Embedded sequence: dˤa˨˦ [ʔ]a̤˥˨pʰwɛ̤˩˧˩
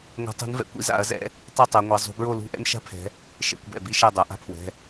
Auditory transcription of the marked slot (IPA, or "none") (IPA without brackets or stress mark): ʔ